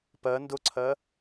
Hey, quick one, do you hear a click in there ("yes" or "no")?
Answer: yes